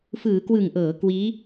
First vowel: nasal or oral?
oral